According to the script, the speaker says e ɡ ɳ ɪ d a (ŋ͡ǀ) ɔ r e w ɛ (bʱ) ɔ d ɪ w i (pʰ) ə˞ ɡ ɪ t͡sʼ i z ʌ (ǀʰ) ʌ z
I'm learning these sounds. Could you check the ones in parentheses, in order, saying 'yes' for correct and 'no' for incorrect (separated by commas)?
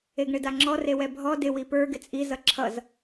no, yes, no, no